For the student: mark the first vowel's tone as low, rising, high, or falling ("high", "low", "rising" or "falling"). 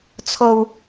low